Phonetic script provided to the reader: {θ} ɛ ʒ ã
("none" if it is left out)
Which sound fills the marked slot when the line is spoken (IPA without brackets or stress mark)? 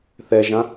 θ